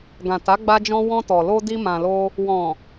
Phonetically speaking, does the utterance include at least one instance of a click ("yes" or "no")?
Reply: no